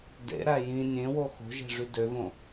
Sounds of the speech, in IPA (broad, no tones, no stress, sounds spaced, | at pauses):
d ḛ ɾ æ j ĩ nʲ ẽ w o x o̤ ʒ e̤ ʐ y d ø v õ